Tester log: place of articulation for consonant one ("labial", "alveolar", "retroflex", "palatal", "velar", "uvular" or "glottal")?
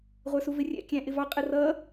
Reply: uvular